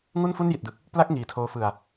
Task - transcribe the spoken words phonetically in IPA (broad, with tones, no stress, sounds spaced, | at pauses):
ŋ u˥˩ n f u˥˩ n j i˨˩ t̚ d ɯ˨˩ k̚ | p l a˥˩ k̚ ŋ iː˨˩ tʰ oː˧ f ɯ˨˩ a̯